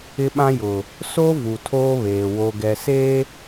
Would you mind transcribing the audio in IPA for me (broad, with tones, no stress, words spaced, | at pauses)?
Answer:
ɪ˦ɓã˦jʊ˨ | so˦ vu˨tʰoː˦βeː˨ wo˨ɡɛ˨se˦